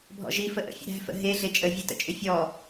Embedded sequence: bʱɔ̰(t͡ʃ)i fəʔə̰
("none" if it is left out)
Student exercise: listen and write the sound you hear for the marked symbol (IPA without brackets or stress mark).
ʒ